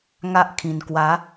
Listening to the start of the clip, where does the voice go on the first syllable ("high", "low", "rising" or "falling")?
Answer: high